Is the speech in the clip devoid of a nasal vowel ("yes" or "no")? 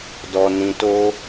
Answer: no